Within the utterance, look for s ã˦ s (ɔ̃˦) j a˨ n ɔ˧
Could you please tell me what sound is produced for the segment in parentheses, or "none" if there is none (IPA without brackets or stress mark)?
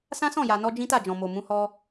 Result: ɔ̃˦˨